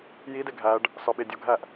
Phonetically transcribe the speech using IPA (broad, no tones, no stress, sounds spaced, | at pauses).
j i d e ɡʱ æ ɖ | s ɒ ɓ e dʲ o ɡʱ æ ʔ